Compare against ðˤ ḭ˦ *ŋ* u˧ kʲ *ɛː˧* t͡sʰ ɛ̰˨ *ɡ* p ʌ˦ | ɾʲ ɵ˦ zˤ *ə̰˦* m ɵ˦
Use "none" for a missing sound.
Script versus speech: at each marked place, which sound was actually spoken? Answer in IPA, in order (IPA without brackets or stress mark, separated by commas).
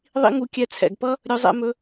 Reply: ŋ, ɛ˧, ɡ, ɛ̰˦